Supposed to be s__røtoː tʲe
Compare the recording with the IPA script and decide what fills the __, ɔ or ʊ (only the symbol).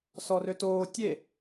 ɔ